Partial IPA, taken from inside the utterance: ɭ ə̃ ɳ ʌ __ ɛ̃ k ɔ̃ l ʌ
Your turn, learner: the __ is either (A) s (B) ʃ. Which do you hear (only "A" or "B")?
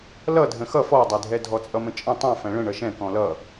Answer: B